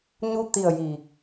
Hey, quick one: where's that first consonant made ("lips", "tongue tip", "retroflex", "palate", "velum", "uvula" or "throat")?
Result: palate